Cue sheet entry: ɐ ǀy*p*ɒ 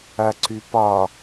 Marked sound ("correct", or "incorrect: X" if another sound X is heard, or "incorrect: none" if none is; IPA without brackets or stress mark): correct